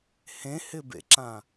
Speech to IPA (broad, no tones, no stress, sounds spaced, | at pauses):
h ẽ h ɪ b ḛ ǁ ã